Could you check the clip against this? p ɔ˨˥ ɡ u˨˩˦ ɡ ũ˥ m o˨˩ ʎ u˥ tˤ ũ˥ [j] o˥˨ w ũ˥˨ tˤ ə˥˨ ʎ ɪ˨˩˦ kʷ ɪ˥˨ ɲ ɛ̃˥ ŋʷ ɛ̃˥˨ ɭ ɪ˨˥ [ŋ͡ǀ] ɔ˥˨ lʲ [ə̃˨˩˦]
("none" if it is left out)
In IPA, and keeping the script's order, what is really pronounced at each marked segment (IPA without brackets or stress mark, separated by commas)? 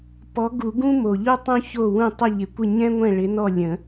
ç, n, ə̃˨˩˦